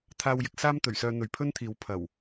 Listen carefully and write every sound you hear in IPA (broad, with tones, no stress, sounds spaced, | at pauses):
t̪ʰ aː˧ w j ɪ˨˥ k̚ s aː˥ m t̪ ɵ˨˩ ɥ s œː˧ n̪ ɵ˨ ɥ pʰ ɵ˥ n t̪ʰ iː˨˥ w pʰ ɐ˨˩ w